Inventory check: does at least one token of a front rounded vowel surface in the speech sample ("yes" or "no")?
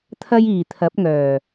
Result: yes